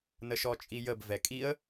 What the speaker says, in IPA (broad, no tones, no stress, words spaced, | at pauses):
nəʃɔt͡ʃʼijəb vɛkʼiə̯